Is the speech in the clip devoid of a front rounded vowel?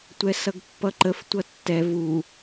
yes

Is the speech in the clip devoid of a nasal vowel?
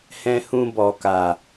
no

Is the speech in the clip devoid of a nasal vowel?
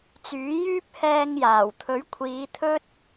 yes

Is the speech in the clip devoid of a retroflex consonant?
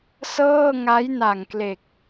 yes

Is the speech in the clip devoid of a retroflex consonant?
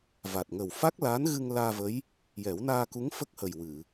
yes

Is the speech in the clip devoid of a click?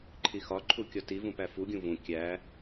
no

